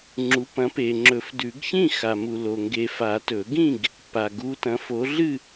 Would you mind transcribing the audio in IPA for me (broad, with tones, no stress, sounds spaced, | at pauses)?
ŋ͡ǁ u˨˦ p ɐ̃˨˦ p e˨ ŋ͡ǁ ɵ˨˩˦ f d ʉ˨˩˦ ɡ ç ĩ˥˨ x a˨ m u˨ l o˨ ŋ ɡ e˨ f a˨˩˦ t ɵ˨˩˦ ɡ ĩ˥˨ ɡ | p a˨ ɡ u˨˦ t ɐ̃˨˦ f o˨˦ ɮ ɨ˥˨